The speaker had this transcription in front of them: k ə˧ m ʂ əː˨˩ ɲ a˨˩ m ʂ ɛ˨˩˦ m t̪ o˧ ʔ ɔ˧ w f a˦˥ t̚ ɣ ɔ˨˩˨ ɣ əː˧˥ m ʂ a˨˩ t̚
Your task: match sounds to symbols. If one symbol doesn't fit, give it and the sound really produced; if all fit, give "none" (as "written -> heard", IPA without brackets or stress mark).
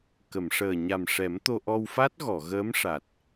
ə˧ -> ə˨˩˨